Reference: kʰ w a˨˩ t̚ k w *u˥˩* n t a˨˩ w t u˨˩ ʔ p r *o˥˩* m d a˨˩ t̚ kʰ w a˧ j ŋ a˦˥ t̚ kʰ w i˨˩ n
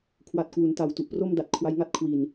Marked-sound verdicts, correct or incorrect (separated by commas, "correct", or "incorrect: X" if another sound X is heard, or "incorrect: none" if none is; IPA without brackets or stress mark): incorrect: u˩˦, correct